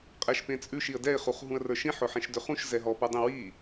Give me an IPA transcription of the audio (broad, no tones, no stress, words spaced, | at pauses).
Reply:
qʼɛʃpẽt͡sʼʉʃ iə̯dɛɪ̯ χuχɦũə̯rə˞ʃĩ ħʊħẽʃdøχũʃ zɛɦɔ pə˞dˤĩwi